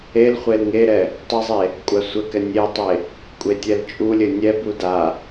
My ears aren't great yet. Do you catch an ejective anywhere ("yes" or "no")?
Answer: yes